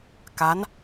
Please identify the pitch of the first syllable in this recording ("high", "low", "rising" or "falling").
rising